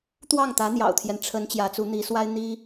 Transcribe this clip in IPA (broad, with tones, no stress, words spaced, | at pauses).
t̪wɑ˥˩ŋt̪ä˧˥ n̪jɑ̰˨˩ʊ̯t̪ʰjɛ˦n ʈ͡ʂʰə˧˥n t͡ɕjä˧˥t͡su˧˥ n̪i˧˥swa˥ɪ̯ n̪i˥